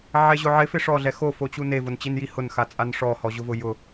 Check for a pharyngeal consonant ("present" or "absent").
present